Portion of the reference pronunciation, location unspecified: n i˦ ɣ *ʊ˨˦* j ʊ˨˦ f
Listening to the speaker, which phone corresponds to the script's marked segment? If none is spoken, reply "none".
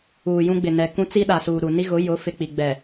ʊ˨˦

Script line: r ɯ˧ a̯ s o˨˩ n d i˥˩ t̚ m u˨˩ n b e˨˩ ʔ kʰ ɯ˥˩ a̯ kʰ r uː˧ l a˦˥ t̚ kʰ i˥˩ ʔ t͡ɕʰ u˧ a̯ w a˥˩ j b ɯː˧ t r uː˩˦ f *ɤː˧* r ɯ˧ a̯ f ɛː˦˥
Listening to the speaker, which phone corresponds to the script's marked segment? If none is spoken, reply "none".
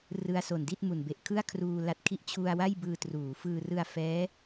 ɯː˧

